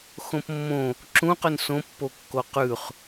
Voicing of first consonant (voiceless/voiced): voiceless